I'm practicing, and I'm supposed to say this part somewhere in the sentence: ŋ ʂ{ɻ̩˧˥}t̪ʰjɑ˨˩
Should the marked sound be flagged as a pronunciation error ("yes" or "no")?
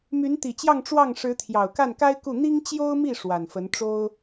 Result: no